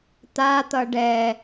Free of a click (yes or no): yes